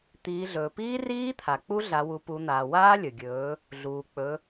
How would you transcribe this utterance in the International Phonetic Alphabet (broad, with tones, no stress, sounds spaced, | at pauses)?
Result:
t̪ iː˩˧ ɮ ɵː˩ p iː˦˥ r iː˦˥ t̪ʰ a˩ k͡p u˦˥ ɮ a˩˧ w u˩˧ p u˩˧ n̪ aː˩ w aː˦˥ lʲ ɵ˩ ɡʲ ɵː˩˧ | ɮ uː˩ k͡p ɵ˩˧